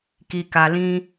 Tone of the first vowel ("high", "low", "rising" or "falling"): low